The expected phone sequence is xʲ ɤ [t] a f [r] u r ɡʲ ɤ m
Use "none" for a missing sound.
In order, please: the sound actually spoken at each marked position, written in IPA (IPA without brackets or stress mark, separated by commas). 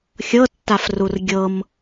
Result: tː, r